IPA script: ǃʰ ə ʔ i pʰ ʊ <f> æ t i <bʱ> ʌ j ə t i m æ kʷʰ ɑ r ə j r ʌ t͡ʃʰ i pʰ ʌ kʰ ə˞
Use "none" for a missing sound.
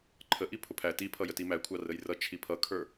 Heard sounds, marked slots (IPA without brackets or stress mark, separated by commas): pʰ, pʰ